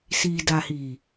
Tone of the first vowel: low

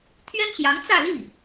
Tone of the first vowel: high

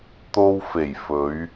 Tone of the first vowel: high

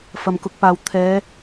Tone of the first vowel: low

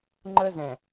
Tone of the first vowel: high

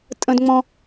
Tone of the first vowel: low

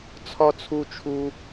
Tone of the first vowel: high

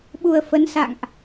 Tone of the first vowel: low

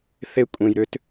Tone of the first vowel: high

